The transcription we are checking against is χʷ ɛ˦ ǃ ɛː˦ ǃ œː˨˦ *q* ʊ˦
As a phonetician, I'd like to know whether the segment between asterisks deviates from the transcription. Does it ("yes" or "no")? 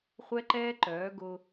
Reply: yes